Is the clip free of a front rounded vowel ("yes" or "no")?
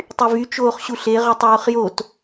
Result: no